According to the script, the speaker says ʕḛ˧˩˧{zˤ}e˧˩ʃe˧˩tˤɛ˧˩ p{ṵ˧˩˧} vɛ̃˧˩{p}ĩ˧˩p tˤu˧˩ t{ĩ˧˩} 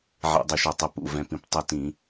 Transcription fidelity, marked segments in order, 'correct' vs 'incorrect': incorrect: dˤ, incorrect: ṵ˧˩, correct, incorrect: ĩ˧˩˧

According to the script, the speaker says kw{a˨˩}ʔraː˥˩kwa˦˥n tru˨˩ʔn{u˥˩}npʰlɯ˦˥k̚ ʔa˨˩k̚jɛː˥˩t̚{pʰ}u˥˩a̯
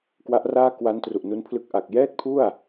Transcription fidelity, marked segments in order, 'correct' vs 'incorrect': incorrect: a˦˥, incorrect: u˦˥, correct

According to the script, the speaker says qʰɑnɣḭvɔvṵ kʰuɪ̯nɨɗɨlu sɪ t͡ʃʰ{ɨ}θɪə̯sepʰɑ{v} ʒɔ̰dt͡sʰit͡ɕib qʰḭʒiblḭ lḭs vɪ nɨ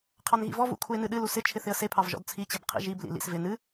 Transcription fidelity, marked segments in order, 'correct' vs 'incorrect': incorrect: ɪ, correct

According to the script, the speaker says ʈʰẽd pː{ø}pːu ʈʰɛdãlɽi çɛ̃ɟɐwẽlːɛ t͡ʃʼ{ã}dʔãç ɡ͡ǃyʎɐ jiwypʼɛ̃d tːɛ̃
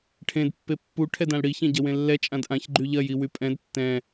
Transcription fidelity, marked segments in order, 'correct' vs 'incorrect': incorrect: e, correct

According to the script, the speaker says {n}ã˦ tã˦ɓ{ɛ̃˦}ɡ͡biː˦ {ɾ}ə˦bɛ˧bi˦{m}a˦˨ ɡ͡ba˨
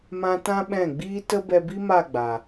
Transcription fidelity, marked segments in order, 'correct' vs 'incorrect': incorrect: m, incorrect: ɛ̃˦˨, incorrect: t, correct

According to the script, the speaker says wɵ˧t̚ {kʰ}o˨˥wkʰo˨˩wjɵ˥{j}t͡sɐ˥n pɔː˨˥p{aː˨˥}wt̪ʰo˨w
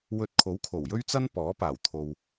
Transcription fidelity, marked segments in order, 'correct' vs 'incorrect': correct, incorrect: ɥ, incorrect: aː˨˩

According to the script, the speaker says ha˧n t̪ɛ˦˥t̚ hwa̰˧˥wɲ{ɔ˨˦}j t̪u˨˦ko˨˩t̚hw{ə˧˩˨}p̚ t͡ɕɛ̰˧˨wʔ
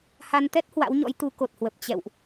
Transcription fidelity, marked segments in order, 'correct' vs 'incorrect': incorrect: ɔ̰˧˥, incorrect: ə˨˩

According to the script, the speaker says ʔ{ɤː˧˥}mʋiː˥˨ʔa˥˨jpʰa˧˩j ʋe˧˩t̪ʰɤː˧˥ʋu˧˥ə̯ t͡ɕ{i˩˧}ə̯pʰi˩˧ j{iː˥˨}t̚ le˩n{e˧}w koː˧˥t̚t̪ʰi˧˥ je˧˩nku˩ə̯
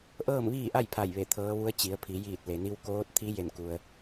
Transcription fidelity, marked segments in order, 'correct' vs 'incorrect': incorrect: ɤː˥˨, correct, incorrect: iː˧˩, incorrect: i˧

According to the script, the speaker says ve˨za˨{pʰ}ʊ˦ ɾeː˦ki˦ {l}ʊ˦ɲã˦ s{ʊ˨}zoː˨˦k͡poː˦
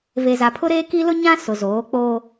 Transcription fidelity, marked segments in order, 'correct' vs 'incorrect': correct, correct, correct

